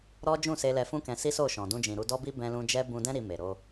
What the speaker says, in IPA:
ɾ ɔ˦ d͡ʒ ũ˦˨ s e˧ l ɛ˧ f ũ˦ k ɛ̃˧ s i˦ s o˦˨ ʃ ɔ̃˨ d ũ˧ d͡ʒ ĩ˨ ɾ u˧ d ɔ˦ b i˦ b ɛ̃˧ l ũ˧ d͡ʒ ɛ˦ b ũ˧ d ɛ̃˦ ɾ i˧ m e˨ ɾ o˧

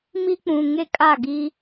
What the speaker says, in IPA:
m i˦ k͡p ũ˨ ŋ e˦ kʼ a˦˨ ɡ i˦

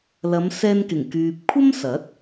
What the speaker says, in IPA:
l ɐ˨˧ m s ɛː˧ n k ɪ˨˩ ŋ k yː˨ p̚ kʷʰ ɐ˥ m s ɐ˨˥ t̚

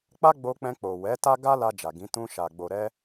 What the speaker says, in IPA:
k͡p a˦ ɡ͡b o˧ k͡p ɛ̃˧ k͡p o˨ w ɛ˨˦ t a˦ ɡ a˦ l a˧ d͡ʒ a˨ ɡ ĩ˨˦ t ũ˧ ʃ a˨ ɡ͡b o˨ ɾ ɛ˧

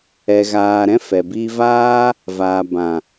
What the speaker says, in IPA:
ɛ˨ ɣ aː˨ ɾ ɛ̃˧ f ɛ˨ b i˧ v aː˦ | v aː˨ b ã˨

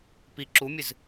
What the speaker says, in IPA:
p i ǁ u mʲ ɨ z

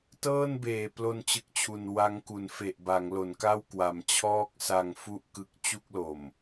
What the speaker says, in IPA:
t ɤː˥˩ n b eː˨˩ p l o˧ n t͡ɕ ɯ˨˩ k̚ t͡ɕʰ u˨˩ n w a˦˥ ŋ k u˩˦ n f e˨˩ ʔ b a˩˦ ŋ l o˩˦ n k a˥˩ w k w a˨˩ m t͡ɕʰ ɔː˥˩ k̚ s a˧ ŋ f u˥˩ ʔ k ɯ˦˥ k̚ t͡ɕ u˥˩ k̚ l o˨˩ m

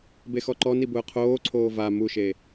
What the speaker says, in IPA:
b e x ɔ ǃ ɔ n i b ʊː qʰ oː ǀʰ oː v a m u ʃ e

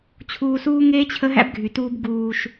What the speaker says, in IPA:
t͡ɕʰ uː˧ s uː˦ ŋ eː˦ t͡ɕʰ ə˦ ɦ æ̰˦ b ɡʱ y˨ t uː˧ b ɡ uː˨ ʃ

